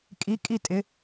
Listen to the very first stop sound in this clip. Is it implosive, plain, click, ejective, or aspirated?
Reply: ejective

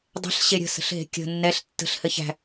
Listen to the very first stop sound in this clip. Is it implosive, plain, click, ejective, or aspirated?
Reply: plain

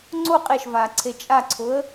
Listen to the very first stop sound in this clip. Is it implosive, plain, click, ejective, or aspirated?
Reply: click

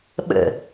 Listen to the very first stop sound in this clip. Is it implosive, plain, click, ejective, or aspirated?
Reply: implosive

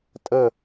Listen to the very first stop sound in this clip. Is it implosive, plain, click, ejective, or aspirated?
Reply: ejective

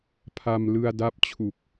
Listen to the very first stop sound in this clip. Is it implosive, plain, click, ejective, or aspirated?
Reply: aspirated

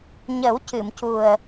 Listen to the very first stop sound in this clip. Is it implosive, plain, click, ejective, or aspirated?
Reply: plain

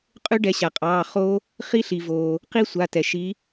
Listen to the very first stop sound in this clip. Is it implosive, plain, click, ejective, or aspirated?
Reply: ejective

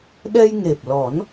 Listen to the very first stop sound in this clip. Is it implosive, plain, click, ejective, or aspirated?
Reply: implosive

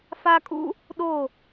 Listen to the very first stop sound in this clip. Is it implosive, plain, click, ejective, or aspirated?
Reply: ejective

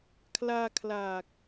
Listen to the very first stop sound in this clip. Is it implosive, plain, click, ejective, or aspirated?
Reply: aspirated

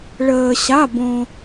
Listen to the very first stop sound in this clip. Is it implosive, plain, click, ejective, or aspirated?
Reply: plain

